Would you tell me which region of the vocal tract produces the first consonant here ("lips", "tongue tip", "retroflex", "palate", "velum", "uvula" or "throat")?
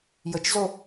palate